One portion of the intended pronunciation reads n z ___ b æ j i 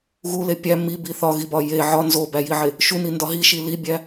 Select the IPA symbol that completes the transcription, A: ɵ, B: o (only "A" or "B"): B